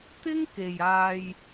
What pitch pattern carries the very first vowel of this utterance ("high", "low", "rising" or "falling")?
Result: high